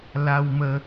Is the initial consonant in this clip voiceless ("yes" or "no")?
no